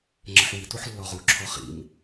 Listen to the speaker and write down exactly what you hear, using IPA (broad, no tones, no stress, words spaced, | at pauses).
ŋ͡ǁəħwi tuħlːɔʁu ǁʰɔχḭm